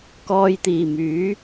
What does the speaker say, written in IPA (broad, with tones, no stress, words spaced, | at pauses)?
kɔː˨jt̪iː˨˩ myː˨˥